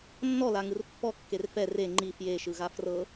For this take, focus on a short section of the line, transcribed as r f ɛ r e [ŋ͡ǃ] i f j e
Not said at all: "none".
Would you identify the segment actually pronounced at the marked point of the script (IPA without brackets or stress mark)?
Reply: ŋ͡ǃ